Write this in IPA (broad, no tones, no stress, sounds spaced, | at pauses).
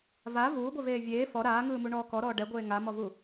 v a v uː ɡʷ e v eː vʲ eː f ɔ ɾ aː ŋ ɯː m u ɳ ɔː k ɔ ɾ ɔː ɖ ɛ ɡʷ eː ŋ a m ɔ v u